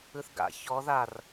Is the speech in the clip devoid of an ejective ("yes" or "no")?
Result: yes